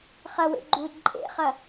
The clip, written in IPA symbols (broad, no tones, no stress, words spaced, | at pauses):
χɐwḛ ɡ͡ǃud ǃʼḛχɐ